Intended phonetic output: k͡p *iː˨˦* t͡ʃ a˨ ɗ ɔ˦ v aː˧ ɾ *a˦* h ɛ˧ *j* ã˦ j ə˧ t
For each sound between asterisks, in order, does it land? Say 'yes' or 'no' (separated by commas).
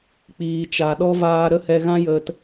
no, no, no